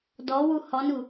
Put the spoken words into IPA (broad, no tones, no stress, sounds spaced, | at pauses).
d ɔ w u h ɔ n u